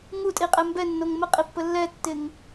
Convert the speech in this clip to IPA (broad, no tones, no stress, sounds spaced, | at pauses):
ŋ u tʼ i qʼ ɛ m b ɛ nː o ŋ m ə qʼ i pː ə lː ɛ tː ɪ ŋ